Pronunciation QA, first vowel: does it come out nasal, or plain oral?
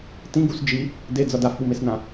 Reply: nasal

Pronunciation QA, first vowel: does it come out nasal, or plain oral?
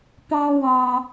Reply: nasal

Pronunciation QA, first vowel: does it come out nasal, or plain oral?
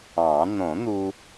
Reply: nasal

